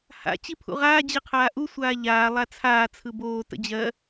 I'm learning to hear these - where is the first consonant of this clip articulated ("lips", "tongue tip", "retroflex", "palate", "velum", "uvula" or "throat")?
throat